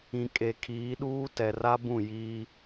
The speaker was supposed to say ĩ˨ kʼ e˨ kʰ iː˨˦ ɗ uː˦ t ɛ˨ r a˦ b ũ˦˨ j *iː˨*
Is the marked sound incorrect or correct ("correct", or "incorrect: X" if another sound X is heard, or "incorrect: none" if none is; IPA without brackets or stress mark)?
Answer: incorrect: iː˦